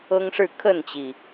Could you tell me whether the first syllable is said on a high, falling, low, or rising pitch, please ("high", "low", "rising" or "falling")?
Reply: high